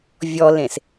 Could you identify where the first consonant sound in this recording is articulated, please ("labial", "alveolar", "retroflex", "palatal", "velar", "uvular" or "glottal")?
labial